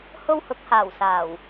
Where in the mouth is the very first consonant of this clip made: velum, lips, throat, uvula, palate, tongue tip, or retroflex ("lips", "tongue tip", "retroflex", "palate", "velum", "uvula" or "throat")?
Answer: throat